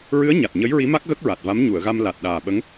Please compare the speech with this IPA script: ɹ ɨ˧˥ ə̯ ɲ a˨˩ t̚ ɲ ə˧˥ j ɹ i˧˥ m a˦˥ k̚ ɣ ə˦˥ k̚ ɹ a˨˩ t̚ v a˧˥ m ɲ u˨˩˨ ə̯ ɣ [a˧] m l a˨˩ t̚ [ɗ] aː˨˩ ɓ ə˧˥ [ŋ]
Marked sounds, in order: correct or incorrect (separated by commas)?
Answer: correct, correct, correct